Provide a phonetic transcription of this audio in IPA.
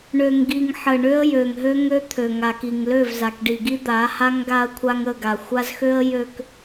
ɳø˨ŋɡi˨ŋ ħə˨ ɳø˦ə̯jø˨ŋɦø˦ ŋø˦t̪ʰø˨ŋa˨ki˨ŋ lø˦˨vza˨kɖi˨ɡi˦ d̪a˨˦ha˦ŋ ɡa˦ə̯kʷʰa˦ŋə˦˨ɡa˨ xʷa˦zxø˦ə̯ jø˨k

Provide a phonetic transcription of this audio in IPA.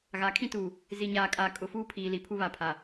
ɣa˨˦kʰĩ˦tuː˨ | zi˨ɲaː˨kʼaː˨ kʼʊ˨fuː˦pʰiː˨ li˨ pʰu˦βa˨pʰa˨

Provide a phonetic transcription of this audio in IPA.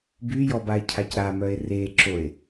byjɔbae̯cʰac ɾamœe̯ reǁoe̯

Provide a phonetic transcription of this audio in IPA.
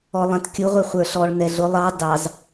ɔlˠɛ̃tkʲʊ ʁʷɛχʷə˞ɬɔɭ nɛɮʊ lˠɑ dɑz

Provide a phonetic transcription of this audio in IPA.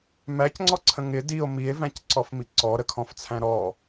mæcŋ͡ǀɔǀʰə̃ ŋɪ dio̯ mie̯væ̃cǀɔfmi ǀɔɾəkʰɔ̃ft͡sʰæ̃ ɾɔ

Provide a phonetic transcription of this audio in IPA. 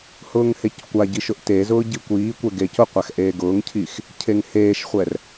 hʊːŋheckʷaɟi ʃʊʔtezʊː ɟikʷiːkʷɛ ɡecʊqʷax ʔeːɡʊːŋcʰiːx | cʰeŋheːʃχʷɛr

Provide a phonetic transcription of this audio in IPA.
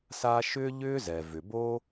sa˦ʃʏː˥ʎʏː˥zɛ˩ vʏ˩boː˥

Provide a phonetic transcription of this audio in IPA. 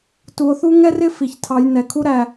tu˧o̯θu˦ ŋɛ˦rɪ˦ fi˨çtʰɑ˧j nɛ˨kʰu˦ɾæ˧

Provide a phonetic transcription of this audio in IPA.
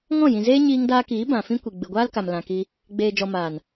ŋɔ̃˦˨jĩ˨zeː˦ ɲiː˧ŋdaː˧kiː˨˦ bã˨fĩ˦kʷi˨ ɡ͡bɨ˨ɡʷaː˦lka˨m lã˧ki˦ | ɡ͡beː˨d͡ʒɔ˨maː˨n

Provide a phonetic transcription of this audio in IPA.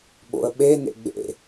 ɓo̰ə̯ɓe nḛɡ͡bḛ

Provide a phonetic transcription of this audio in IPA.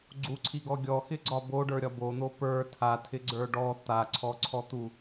ɡ͡ǀuǀʰiɡɔ ɡʲɔxɪɡ͡ǀɒ boɖə˞ɾʲɒ bon̪o pə˞ tʰatʰɪɡ͡ǀə˞ ɖɔ t̪aǀʰɔǀʰɔt̪u

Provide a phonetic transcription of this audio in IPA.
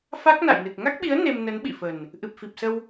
fa˦˥k̚na̰˧˨jnɨ˨˩k̚ ŋa˦˥k̚ɓi˨˦ə̯ ne˧m nə˨˦nɓḭ˧˨fə˨˩n | ʔɨ˨˩p̚fi˨˩p̚sə˧w

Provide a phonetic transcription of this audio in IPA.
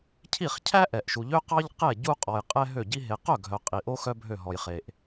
cʰi˥˩χcʰæ˥ ʔɛ˨ʔʃu˨ʎø˥ qɑ˥ʎ qɛ˥˩ ɟu˥˧qʼɔ˨j qʼɛ˥ɦø˥˩ɟi˥ ɦe˨qœ˥˩ɡʱœ˨ qʼi˨ʔo˥ xœ˥bʱø˥˩ ɦɔ˨jχe˨ʔ

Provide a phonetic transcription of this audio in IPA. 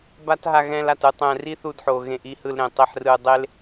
ba˦t ɦa˧ɣɛ̃˧la˨tɯ˧ tˤɛ̃˨ ri˦θu˧dħo˨ ɣẽ˧ʔi˦hɯ˧l ɾẽ˨tˤi˧ħrɯ˧dˤe˦l

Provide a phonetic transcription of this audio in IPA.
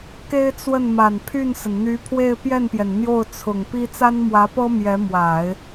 ke˥ɪ̯t͡swə˥˩nma˨˩n pʰy˥˩nsə˩nn̪y˧˥ pʰwe˥˧ɪ̯pjɛ˥˩npjɛ˩n n̪jo˥˩ʊ̯t͡sʰʊ˨˩ŋpi˥ t͡sa˥nmwä˧˥pɤ˥ mjɛ˧˥mwa˨˩˦ɪ̯

